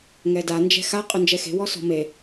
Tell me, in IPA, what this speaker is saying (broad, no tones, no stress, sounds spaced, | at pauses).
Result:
ŋ ɛ d a n d͡ʒ ɛ̤ x a qʼ ʏ n d͡ʒ ɛ x e̤ w ɔ s ɔ̤ m e